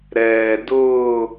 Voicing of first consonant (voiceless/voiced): voiced